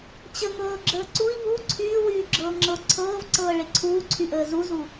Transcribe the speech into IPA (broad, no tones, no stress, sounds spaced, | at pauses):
t͡ɕ ə ŋ ɤː ɡ͡ǁ əː ǀ u i̯ v u ǀʰ yː w yː ɡ͡ǁ ɤː ŋ͡ǁ ɤ ǀʰ ɤː v ǀ ɤː ɭ e ǀʰ uː ǀʰ y ʔ əː z u z u